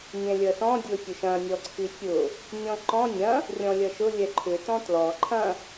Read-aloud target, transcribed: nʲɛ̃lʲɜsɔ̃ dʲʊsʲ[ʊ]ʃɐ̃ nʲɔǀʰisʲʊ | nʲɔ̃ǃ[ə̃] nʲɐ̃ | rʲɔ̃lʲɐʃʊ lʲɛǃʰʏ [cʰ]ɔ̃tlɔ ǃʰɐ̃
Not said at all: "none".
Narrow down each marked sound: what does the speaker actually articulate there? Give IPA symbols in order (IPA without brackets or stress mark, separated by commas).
ʊ, ɔ̃, t